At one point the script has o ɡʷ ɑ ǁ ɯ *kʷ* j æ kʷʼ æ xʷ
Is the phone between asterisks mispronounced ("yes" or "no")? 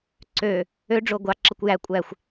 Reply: no